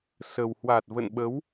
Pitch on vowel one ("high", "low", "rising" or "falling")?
low